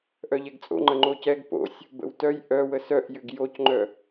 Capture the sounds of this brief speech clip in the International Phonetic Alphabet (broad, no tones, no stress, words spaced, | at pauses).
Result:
ʔœʎɛɡt͡sʼo̰ ŋ͡ǃəŋ͡ǃocɛɡ po̰sʲ | bə̰wtœj ʔœ wəsœʔ jʏɡjocŋ͡ǃœ